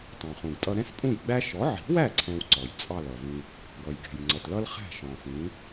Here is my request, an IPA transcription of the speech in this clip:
t ɑ̃˩ χ ũ˩ ɡ tʼ ʌ˧ ɾ ɛ̃˥ s pʼ ũ˥˩ j ɡ͡b æ˥ ʃ ɔ˩˥ ʕ i̤˩˥ w æ˥˩ ǀʰ ɛ̃˧ w ǀ ɔ˩ j t͡sʼ ɑ˥˩ l ʌ˩ v ĩ˧ | ɡ ʌ˩ j ɡ ɛ̤˩ j ŋ͡ǀ ʌ˩ t l ʌ˥ l χ æ̤˥˩ ʃ ɔ̃˩ s ĩ˩˥

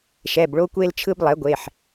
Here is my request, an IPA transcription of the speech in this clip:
ʃ ɛ˩˧˩ b ɭ o˧ kʷ e˧ l t͡ʃʰ ɯ˧ b lˠ ɛ˩˥ ɡʷ e˩˧˩ ħ

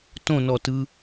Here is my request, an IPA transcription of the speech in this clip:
t õ n ɔ t ɯ

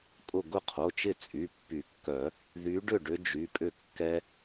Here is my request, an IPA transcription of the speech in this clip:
kʼ ʊ˧˩ ɡ ʊ˥˩ qʰ o˩˧˩ t͡ʃ ɪ˥˩ t͡sʼ y˩˧˩ pː y˨˩˦ kː œ˨˩˦ | ð y˨˦ ɖ ʏ˥˩ ɖ ʏ˦˥ d͡ʒ y˩˧˩ pʼ ʏ˥˩ kː ɛ˦˥

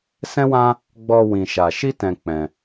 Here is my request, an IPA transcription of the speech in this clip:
s ɛ̃˦ w ã˦ | ɡ͡b ɔ˧ w ĩ˧ ʃ a˧ ʃ i˦ t ɛ̃˧ k͡p ɛ̃˧

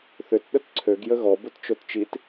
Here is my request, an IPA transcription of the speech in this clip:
θ ʏ t ɗ ə t ǀʰ ø ɡ j ə ɣ ɔ b ʊ t t͡ʃ o t t͡ʃ i t

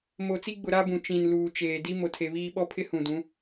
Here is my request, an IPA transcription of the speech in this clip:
m o˨ t͡s i˦ ɡ͡b ʊ˨ ɾ a˦ b ũ˨ t͡ʃ ĩ˨ n l uː˨ t͡ʃ eː˨ d i˦ m o˨ tʰ e˨ β iː˦ ɓ ɔ˦ pʰ ɪ˦ h ũ˨ d ũ˨˦

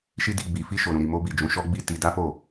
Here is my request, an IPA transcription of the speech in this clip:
ʃ i˦ d i˧ ɡ͡b i˨ f i˧ ʃ o˨ ɾ ũ˨ ɾ i˨ m o˧ b i˨ d͡ʒ ũ˨˦ ʃ ɔ˦ ɡ͡b i˦˨ t i˧ d a˦ f o˦˨

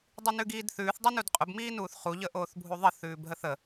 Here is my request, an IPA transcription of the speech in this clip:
dˤ i n ʉ ɡ iː d θ ʉː θ dˤ ʉ n u d qʼ ʊ b m iː n uː θ χ u ʎ ə ʔ oː θ bʱ u ðˤ ə θ ʉː b ɦ ə θ ə

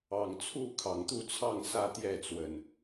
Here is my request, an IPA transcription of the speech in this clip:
ɑ˨˩ ŋ t͡sʰ u˥˨ kʰ ɑ˨˩ ŋ t̪ u˥˨ t͡sʰ ɑ˥˨ ŋ s ä˥˨ t̪ j ɛ˥˨ t͡s w ə˨˩ n

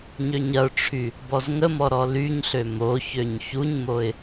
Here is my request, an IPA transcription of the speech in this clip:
ɲ ø ɲ ɐ ʊ̯ ʈ͡ʂʰ y | b ɔ z ŋ ə m ɔ ɾ ɔ l y ɲ ɬ ø m o ç ø ɲ ç u ɲ m o ɪ̯

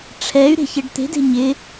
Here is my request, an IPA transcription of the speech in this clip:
ʈ͡ʂʰ ɛ y̯ ɾ e̤ ç ɪ ɖ t̪ e̤ d e̤ ɲ ɪ

